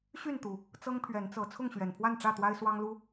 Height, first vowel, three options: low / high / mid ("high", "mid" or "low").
high